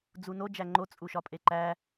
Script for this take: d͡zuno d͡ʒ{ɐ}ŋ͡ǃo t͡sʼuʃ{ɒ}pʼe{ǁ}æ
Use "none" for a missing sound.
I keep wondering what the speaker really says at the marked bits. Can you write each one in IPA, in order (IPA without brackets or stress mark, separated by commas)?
æ, ɒ, ǃ